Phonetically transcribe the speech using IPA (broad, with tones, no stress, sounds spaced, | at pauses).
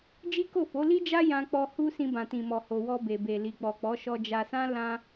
d͡ʒ i˦ k o˦˨ f o˨˦ l i˦ d͡ʒ a˦ j ã˧ k͡p ɔ˧ h u˧ s ĩ˧ b ã˨ t ĩ˨ m ɔ˨ h o˧ w ɔ˧ b e˨ b e˨ l i˨ k͡p ɔ˨ k͡p ɔ˨˦ ʃ ɔ˧ d͡ʒ a˧ s ã˦ l ã˦